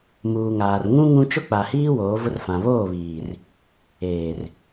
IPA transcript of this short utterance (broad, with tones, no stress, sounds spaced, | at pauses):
m uː˨ ŋ aː˨ r ŋ ũ˦ ŋ ũ˦ t͡ʃ ʊ˦ k͡p a˨ h iː˦ w oː˨˦ v ʊ˦ r f ã˨ β oː˦˨ β iː˨ r | eː˨ r